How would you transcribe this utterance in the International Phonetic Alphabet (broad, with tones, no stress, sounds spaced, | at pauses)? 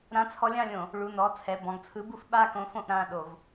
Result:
ɾ ã˨˥ t͡sʰ ɔ˨˥ lʲ ã˦˨ lʲ õ˧˩˧ | ɭ u˩˧˩ n ɔ˩˧˩ t͡sʰ ɛ˩˧˩ b ɔ̃˩˧˩ ɡ t͡sʰ ɯ˨˥ b u˦˨ f ɓ a˦˨ k õ˨˥ f õ˦˨ ʔ ɾ ã˩˧˩ ɗ o˧˩˧ v